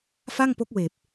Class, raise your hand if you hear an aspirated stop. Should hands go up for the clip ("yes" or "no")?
no